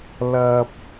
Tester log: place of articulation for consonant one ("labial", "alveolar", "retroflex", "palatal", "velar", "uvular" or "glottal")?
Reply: alveolar